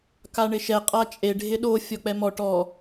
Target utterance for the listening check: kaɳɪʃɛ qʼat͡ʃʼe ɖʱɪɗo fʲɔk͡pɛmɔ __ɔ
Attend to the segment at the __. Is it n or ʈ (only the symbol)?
ʈ